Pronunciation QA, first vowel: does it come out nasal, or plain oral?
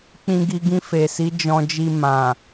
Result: nasal